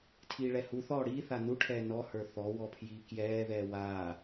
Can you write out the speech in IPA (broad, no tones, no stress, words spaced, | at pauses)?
tʰiːɭɛhuθɔː ɽiː θanuʈʰɛː nɔhə˞ θɔ wɔpʰjiːkjɛːðɛː waː